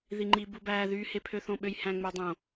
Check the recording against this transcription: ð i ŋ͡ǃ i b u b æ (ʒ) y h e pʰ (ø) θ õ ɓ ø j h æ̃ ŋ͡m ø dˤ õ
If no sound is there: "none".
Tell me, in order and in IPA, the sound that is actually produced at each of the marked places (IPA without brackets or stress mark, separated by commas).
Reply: ð, ø